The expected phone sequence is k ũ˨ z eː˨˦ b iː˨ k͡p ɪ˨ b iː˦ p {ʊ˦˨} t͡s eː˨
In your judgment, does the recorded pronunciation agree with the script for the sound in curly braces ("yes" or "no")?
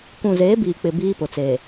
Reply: no